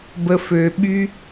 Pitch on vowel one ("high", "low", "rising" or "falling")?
low